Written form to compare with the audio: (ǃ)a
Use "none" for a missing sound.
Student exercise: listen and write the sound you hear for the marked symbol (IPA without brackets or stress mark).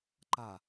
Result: ǃ